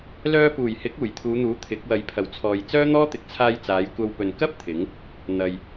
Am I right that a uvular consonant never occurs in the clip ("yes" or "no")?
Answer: yes